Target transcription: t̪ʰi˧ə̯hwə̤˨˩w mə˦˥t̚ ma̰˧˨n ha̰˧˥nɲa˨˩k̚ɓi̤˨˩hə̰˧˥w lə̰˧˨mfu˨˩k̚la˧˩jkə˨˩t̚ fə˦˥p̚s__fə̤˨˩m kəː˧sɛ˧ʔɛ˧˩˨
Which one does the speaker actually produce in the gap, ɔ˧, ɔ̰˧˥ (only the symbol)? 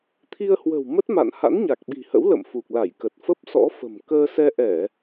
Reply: ɔ̰˧˥